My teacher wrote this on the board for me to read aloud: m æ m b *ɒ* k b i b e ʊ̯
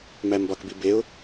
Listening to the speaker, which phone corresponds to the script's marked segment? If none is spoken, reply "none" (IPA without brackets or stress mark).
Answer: ɒ